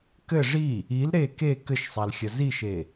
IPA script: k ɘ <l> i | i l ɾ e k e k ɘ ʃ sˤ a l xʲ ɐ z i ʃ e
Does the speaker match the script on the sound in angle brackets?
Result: no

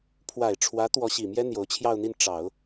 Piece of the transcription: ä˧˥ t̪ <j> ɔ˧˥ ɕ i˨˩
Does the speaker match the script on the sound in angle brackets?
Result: no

